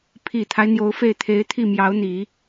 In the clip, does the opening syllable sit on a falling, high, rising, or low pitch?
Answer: low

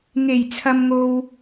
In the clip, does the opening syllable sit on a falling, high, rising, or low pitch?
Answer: low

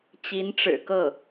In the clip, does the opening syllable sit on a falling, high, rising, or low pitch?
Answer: rising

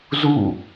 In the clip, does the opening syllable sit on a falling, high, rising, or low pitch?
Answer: falling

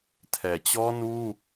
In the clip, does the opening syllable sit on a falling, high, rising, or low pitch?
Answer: low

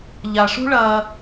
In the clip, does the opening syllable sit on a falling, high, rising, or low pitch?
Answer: low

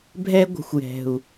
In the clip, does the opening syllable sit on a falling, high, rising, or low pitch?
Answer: high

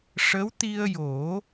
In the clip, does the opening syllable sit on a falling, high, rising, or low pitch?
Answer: rising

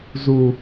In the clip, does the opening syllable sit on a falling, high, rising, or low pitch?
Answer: high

